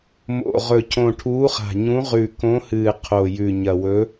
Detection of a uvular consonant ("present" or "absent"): present